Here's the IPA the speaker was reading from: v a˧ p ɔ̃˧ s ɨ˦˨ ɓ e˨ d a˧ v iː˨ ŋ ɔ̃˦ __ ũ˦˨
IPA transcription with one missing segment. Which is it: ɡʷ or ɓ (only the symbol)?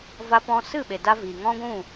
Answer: ɡʷ